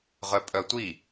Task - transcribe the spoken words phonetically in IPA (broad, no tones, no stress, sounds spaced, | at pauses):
ʁ œ pʼ œ tʷ i